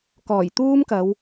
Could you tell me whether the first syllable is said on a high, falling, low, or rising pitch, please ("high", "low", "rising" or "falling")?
low